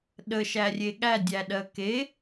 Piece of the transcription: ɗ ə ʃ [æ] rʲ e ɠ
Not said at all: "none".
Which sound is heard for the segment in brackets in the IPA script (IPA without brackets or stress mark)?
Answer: æ